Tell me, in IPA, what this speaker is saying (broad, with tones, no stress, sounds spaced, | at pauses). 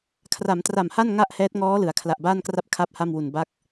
kʰ r a˩˦ m t r a˨˩ m h a˥˩ n ŋ a˥˩ ʔ h ɛː˦˥ t̚ ŋ ɔː˦˥ l ɯ˩˦ a̯ kʰ l a˨˩ ʔ b aː˥˩ n k r a˥˩ p̚ kʰ a˥˩ p̚ h a˥˩ m w u˨˩ n b a˦˥ k̚